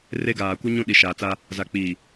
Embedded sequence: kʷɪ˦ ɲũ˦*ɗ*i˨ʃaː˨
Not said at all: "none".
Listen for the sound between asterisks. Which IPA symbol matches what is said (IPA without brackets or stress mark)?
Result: ɗ